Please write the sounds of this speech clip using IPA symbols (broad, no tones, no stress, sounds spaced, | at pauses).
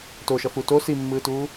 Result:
t o ʃ ʌ f u t o s i mː ɯː t uː